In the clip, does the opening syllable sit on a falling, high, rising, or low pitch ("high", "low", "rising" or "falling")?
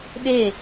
falling